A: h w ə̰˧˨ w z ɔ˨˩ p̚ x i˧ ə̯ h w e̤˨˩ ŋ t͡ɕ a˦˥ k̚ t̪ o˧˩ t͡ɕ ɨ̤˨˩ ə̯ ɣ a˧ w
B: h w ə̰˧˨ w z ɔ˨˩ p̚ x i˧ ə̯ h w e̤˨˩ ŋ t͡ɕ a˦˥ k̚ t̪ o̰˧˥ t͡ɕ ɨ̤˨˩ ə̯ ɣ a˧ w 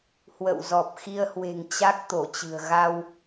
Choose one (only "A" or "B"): A